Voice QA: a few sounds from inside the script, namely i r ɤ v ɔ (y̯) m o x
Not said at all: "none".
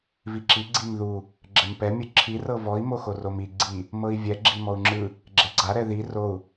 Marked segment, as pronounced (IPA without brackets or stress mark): i̯